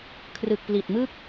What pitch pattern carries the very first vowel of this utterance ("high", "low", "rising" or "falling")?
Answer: low